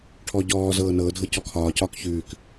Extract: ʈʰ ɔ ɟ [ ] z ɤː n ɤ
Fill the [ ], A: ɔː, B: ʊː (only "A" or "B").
A